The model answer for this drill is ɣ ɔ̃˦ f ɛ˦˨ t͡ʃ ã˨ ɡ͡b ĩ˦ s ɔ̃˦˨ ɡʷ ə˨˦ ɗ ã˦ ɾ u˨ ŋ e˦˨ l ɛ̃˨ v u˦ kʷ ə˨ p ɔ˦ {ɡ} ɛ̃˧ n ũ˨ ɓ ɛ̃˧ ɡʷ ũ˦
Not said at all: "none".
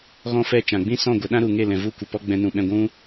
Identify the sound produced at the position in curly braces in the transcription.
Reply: ɡ͡b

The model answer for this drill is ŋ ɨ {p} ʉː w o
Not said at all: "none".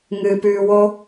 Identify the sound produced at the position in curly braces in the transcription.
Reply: p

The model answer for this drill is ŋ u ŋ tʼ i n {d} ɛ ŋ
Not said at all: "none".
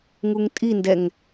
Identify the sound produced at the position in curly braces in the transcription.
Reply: d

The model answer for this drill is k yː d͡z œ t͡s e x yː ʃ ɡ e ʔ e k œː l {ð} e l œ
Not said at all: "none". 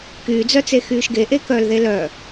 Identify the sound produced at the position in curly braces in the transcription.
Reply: ð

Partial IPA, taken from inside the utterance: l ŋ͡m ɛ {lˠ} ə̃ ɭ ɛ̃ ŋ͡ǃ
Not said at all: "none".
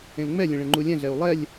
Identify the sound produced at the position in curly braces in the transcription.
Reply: lʲ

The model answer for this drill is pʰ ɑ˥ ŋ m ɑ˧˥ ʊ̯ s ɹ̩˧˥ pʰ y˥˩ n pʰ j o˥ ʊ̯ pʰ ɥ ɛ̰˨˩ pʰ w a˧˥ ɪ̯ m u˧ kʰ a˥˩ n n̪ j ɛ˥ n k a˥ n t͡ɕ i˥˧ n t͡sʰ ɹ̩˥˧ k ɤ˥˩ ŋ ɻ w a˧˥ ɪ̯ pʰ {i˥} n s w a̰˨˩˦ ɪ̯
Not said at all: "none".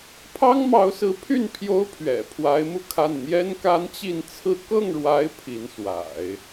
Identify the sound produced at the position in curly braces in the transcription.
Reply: i˧˥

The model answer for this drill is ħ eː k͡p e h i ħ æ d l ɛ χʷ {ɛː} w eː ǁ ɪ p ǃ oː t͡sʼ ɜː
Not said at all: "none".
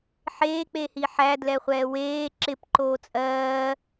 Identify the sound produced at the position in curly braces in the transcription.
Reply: ɛː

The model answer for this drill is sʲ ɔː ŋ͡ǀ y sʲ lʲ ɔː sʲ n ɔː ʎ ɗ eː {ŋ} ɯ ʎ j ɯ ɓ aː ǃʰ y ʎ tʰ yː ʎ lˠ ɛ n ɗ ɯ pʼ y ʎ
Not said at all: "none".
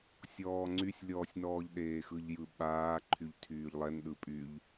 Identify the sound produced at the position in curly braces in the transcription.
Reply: x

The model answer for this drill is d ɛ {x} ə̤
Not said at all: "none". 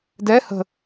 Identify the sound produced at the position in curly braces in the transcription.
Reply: h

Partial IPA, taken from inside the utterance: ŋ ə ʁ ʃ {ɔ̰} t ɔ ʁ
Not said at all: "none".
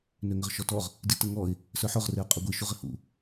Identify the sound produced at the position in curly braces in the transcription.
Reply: ɔ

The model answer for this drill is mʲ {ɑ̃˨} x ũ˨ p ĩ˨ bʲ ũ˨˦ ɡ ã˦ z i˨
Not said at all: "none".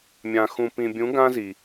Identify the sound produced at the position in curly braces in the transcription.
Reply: ã˨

